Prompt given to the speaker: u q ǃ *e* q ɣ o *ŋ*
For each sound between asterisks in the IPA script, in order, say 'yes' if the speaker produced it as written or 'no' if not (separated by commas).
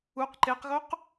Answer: yes, no